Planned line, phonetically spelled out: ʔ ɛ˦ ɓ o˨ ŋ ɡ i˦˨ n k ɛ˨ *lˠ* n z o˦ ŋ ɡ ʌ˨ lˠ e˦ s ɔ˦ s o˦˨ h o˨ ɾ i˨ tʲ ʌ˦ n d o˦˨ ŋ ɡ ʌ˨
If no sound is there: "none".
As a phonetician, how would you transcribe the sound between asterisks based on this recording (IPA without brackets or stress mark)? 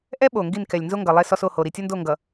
lʲ